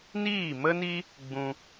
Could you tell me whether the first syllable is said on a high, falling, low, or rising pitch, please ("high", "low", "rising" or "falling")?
falling